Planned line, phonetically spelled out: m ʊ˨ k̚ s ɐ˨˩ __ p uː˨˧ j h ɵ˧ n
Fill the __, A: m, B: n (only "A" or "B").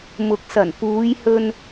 B